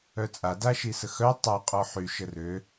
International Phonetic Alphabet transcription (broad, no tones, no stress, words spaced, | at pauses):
œt͡sʼa daʃisəxœ tˤa qʼɔħy ʃərø